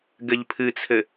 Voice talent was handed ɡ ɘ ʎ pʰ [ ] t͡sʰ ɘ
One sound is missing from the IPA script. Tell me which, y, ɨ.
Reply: ɨ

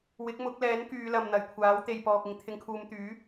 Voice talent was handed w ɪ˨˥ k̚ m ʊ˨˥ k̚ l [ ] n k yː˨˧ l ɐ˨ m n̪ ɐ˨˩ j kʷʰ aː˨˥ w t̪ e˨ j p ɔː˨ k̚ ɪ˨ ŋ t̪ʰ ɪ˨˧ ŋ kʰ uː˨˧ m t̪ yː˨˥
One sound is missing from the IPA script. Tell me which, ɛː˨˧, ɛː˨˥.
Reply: ɛː˨˥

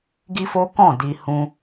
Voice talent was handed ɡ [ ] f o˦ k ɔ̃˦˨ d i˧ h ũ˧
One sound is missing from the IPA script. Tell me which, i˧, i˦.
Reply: i˦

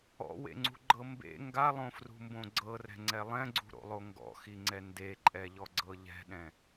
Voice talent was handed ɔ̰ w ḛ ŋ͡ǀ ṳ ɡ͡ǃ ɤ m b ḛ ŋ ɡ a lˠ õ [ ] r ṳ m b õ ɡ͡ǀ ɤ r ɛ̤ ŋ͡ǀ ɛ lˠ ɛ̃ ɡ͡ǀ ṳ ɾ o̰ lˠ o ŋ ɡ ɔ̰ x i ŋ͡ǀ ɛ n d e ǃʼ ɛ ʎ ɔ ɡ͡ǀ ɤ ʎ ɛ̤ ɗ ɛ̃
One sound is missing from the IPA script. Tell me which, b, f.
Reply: f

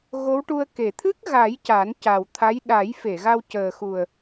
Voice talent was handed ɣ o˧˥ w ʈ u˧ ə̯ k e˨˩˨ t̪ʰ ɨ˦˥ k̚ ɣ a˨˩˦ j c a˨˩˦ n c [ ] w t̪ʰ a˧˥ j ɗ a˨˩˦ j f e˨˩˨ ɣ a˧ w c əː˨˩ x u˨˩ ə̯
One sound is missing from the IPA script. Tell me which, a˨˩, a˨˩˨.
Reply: a˨˩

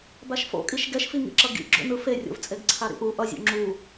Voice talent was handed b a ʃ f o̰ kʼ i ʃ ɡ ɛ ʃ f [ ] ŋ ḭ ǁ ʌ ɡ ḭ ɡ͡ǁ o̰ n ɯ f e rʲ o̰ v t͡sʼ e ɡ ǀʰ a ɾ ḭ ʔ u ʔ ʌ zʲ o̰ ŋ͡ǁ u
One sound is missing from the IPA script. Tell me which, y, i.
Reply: i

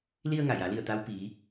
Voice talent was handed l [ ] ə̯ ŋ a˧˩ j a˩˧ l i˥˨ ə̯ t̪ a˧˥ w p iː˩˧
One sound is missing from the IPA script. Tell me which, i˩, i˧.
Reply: i˧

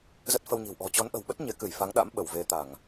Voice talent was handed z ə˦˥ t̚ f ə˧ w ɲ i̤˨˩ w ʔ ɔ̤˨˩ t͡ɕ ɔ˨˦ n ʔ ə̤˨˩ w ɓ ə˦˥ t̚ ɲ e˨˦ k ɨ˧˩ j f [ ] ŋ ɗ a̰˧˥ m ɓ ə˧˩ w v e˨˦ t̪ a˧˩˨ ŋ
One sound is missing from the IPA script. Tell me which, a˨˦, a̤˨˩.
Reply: a˨˦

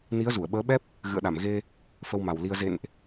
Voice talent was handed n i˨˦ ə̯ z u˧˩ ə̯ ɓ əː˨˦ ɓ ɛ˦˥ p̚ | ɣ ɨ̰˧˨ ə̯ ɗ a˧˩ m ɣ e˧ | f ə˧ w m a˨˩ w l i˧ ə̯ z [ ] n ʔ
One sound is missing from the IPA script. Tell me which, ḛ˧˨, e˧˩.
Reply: ḛ˧˨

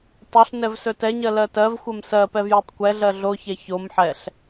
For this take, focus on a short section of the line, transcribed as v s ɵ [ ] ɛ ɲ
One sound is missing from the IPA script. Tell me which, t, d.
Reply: t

